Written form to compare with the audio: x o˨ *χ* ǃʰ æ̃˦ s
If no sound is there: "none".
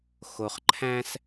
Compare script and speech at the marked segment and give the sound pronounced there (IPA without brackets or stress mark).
χ